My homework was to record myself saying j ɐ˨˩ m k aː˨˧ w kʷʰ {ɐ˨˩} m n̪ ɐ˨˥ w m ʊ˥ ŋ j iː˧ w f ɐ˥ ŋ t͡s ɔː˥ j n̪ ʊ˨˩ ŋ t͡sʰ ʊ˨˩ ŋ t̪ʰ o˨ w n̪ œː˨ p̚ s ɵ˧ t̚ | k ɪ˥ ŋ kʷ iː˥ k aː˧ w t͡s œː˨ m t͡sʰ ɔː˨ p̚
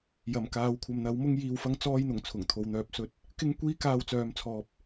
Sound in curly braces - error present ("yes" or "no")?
yes